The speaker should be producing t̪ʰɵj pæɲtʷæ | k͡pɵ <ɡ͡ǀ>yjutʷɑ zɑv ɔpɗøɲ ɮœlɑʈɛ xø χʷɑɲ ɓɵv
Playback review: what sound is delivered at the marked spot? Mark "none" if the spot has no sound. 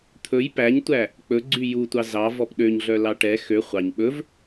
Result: ɡ͡ǀ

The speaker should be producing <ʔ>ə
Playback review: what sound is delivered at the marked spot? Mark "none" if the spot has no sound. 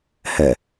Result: h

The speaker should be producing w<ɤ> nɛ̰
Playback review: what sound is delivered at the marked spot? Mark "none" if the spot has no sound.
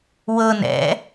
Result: ɤ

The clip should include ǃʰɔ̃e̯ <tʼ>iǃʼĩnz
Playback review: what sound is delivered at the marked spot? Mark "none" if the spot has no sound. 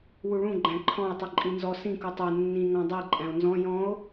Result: tˤ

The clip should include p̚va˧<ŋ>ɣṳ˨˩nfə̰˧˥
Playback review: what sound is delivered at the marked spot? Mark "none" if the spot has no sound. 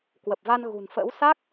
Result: n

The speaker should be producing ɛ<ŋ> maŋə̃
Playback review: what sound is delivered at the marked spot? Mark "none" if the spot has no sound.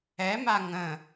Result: none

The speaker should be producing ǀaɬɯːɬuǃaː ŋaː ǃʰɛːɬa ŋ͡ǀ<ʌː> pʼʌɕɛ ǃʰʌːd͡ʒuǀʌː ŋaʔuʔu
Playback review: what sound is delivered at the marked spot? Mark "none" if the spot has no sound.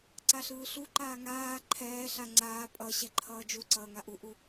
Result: aː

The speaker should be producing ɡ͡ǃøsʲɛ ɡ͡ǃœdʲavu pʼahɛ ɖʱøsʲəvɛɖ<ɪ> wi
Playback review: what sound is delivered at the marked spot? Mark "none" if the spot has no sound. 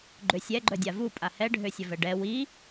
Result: ɛ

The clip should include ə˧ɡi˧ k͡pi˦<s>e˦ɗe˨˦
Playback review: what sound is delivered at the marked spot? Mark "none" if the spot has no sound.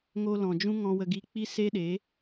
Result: s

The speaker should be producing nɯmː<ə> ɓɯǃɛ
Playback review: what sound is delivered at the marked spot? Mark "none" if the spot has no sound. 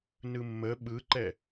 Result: ə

